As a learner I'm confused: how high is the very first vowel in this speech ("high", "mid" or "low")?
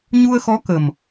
high